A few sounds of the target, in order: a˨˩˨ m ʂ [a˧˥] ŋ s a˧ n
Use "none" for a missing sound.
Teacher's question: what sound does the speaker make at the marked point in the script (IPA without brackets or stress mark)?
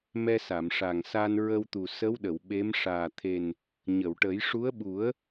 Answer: a˨˩